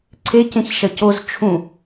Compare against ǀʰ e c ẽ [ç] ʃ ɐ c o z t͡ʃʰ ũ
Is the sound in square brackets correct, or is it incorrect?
correct